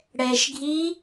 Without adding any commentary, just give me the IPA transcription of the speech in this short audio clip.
ɽ ɛ ʃ ɡʱ i

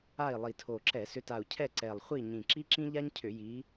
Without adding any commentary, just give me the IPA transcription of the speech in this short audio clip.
a˦˨ i̯ lˠ i˨˩ tʰ o˨˩ ǁ ɛ˧˩˧ s ʏ˨˦ t a˨˩ u̯ cʰ ɛ˦˨ ǀ ɛ˨˩ lˠ χʷ i˦˨ ɲ ĩ˨˩ ǁ i˥ ǁ ĩ˥ ʎ a˥ ɲ cʰ ʏ˧˩˧ j i˨˦

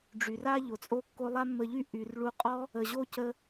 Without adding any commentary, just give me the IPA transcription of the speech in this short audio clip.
ɖ͡ʐ y˨ r a˦ ʎ o˨ t͡sʼ o˦ kː o˦ lˠ a˦ mː ə˧ ʎ y˦ ʔ y˨ r ɭ u˧ qʼ ɔ˦ | ə˨ ʑ o˦ c ə˧

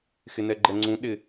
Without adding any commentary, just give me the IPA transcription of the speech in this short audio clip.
x ɪ n ɛ ɡ͡ǃ ɛ ŋ͡ǀ ũ ɗ ɪ

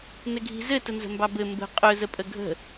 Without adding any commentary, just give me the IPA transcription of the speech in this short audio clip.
n ɘ ɡʱ i̤ z ɘ t ə n z ə̤ m b ɑ b ɘ m b ə̤ qʼ ɵ z ə pʼ ə ɡʱ ə̤

